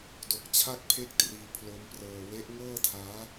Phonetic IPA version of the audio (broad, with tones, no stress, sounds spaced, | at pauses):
d o˨˩ k̚ t͡ɕʰ a˥˩ k̚ pʰ e˥˩ k̚ t r iː˧ pʰ l o˦˥ m p r ɤː˧ w e˦˥ ʔ ŋ ɤː˥˩ tʰ aː˦˥